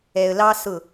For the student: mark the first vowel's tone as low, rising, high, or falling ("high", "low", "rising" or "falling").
low